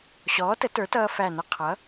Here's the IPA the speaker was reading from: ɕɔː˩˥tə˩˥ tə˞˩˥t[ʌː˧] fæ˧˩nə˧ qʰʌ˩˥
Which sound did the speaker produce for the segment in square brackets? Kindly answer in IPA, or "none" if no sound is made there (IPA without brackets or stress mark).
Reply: ʌː˧